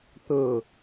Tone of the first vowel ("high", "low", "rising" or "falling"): low